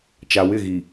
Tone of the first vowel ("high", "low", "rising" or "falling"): low